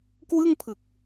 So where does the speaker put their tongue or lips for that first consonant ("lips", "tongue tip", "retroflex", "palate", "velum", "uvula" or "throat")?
velum